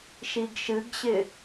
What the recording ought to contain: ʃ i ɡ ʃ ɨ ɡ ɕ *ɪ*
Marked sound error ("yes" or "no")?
no